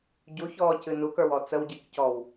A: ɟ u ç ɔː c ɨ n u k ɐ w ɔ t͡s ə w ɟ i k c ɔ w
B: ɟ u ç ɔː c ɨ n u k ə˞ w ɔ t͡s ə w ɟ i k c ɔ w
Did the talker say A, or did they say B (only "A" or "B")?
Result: B